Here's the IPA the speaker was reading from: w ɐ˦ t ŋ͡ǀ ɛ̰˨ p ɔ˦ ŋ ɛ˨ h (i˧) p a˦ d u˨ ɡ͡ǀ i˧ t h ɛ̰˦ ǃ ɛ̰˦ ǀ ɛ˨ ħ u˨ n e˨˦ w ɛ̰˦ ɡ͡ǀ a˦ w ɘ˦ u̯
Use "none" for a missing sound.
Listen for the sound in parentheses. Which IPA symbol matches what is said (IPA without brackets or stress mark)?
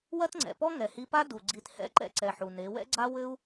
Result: i˧